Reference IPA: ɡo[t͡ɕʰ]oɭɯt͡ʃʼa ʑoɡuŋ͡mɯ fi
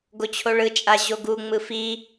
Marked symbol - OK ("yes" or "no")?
yes